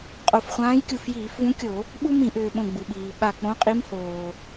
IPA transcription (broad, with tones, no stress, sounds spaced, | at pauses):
qʼ o˧˩ f χʷ ãː˧˥ j kʲ u˧˩ f j iː˧˩˧ f v ũ˧˥ kʲ o˧˩˧ | ɓ u˥ m ĩ˧˩˧ ʔ ʏː˩ ɓ õ˧˩ ɡ͡b u˩ ɓ iː˩ ɓ a˧˩ k͡p õ˧˥ qʼ i˧˥ m h oː˩